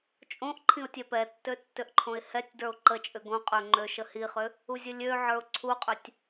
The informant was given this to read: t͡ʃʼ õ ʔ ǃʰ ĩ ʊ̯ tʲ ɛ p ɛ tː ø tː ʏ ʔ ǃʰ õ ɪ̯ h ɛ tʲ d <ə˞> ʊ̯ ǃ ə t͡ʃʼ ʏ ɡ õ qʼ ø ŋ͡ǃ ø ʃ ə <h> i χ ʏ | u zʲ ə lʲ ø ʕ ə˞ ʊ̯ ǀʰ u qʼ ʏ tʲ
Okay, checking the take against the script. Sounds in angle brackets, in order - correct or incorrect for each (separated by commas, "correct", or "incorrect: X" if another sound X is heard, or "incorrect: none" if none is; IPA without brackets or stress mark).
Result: correct, correct